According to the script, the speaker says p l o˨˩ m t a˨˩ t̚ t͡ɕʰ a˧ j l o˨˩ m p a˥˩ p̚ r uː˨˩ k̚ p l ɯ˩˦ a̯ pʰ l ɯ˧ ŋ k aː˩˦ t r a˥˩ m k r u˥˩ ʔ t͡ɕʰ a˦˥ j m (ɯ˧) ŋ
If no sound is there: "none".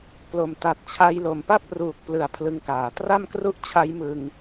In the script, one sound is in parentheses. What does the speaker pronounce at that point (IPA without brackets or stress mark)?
ɯ˧